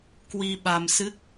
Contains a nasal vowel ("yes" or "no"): no